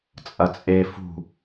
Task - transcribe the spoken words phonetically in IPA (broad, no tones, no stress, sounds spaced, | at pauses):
t͡sʼ ɐ t͡sʼ e f ṳ